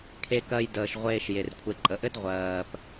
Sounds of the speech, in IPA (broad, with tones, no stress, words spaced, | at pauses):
kʰe˨kɜ˨j dəː˩ʃʁʷeː˨ʃ je˩rkʷʰe˨ǃʼə˨ʔɘ˥d ʁʷɜː˩p